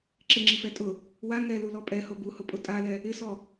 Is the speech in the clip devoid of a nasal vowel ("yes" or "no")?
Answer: yes